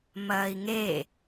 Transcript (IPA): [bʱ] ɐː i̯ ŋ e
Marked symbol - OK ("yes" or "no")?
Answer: no